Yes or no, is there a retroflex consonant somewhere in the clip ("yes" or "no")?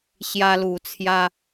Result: no